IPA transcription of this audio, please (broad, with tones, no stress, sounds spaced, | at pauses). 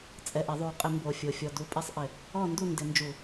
t͡sʼ ɛ˨˩ ʔ ɪ˧˩˧ ðˤ u˨˩ qʼ ɪ˧˩˧ m b o˨˩ fʲ o˨˩ fʲ ɔ˨˩ d u˨˦ pʼ e˥˨ sˤ ʔ ɪ˧˩˧ | ɔ˥˨ n d u˥˨ n d ɪ˧˩˧ n d͡ʒ u˧˩˧